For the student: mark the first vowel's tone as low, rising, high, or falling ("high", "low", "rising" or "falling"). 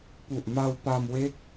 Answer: low